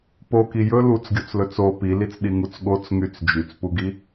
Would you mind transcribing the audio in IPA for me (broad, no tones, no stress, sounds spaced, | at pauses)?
p o k i j ɵ l u t͡s ɡʲ o t͡s l ɵ t͡s o p i l i t͡s ɗ i ŋ u t͡s ɠ o t͡s ŋ y t͡s d͡ʒ y t͡s p u ɡ i